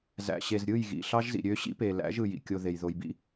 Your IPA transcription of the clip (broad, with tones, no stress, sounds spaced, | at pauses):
z æ̰˨ ɕ e˨ z ɾʲ ɯ˦˨ j ɣ ḭ˨ ɬ ɑ˦ ʒ z ḭ˨ ɾʲ ø˦ ɕ ḭ˦ p e˨ l æ̰˨˦ ʒ ɯ˨ j ḭ˨ kʲ o˨ ð e˨ j ð o˨ j b ḭ˦